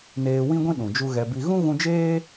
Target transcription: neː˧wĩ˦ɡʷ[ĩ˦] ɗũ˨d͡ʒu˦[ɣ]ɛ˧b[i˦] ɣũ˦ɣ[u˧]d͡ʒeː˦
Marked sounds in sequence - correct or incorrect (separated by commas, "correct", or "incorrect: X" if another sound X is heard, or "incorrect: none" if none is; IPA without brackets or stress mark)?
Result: correct, correct, correct, incorrect: ũ˧